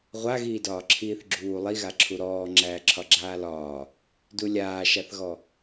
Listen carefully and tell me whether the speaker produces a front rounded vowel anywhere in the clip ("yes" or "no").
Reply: no